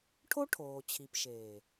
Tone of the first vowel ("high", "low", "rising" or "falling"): high